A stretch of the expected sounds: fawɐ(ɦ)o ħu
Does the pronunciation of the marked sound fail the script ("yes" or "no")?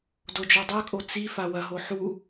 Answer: no